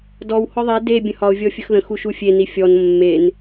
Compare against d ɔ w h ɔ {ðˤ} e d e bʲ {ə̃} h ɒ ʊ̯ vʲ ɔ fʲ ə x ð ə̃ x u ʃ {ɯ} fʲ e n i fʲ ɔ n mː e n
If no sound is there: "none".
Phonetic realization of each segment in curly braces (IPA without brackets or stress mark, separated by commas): ðˤ, ə̃, u